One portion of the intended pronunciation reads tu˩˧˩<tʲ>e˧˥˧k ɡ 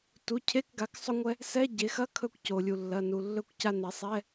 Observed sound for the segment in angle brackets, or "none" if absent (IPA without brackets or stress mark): cʰ